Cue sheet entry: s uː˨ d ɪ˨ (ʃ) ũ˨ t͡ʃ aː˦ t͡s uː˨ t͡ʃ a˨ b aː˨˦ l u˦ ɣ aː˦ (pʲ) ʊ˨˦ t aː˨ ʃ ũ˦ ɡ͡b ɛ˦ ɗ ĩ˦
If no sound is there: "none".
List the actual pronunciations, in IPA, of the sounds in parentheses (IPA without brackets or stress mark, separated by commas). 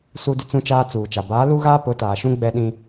t͡s, p